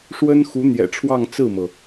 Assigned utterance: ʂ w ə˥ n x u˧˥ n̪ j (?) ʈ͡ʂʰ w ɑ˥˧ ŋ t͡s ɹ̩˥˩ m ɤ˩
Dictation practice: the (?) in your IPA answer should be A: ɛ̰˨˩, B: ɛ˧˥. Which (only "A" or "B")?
A